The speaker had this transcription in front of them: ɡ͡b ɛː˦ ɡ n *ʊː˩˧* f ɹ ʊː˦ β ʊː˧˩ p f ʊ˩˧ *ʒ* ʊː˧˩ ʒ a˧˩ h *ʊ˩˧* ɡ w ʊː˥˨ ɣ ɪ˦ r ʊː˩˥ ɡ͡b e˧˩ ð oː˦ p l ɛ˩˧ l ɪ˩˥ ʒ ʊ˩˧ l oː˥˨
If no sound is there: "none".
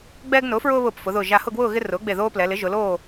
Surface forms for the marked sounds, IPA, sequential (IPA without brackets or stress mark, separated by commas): ʊː˩˥, ð, ʊ˥˨